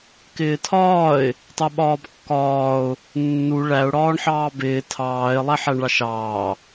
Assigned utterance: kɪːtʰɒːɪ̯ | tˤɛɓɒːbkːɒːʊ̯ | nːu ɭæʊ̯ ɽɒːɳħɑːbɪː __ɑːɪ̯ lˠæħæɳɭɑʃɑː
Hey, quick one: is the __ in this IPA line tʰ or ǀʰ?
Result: tʰ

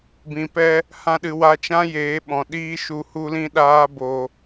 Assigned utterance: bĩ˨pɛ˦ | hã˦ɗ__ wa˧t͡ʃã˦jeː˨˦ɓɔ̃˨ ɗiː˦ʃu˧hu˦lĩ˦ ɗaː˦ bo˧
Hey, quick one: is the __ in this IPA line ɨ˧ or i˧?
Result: ɨ˧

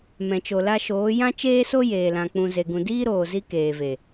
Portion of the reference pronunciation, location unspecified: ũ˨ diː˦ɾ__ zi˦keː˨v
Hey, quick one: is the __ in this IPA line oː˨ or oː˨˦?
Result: oː˨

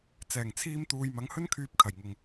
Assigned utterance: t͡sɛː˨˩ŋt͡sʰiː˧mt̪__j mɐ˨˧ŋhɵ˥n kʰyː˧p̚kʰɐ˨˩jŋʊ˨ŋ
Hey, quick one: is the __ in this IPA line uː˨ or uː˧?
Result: uː˨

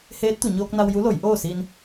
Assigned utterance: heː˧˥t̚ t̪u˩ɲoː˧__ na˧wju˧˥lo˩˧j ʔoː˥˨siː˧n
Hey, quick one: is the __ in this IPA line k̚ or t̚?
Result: k̚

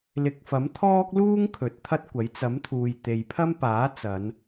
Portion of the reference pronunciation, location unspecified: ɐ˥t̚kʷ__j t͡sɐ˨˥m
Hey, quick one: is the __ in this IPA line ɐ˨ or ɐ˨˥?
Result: ɐ˨˥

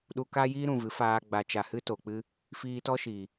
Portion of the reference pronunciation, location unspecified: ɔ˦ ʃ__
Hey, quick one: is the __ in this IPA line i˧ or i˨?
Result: i˨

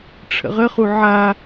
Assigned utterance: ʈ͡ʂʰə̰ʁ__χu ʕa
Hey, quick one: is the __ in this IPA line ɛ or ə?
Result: ə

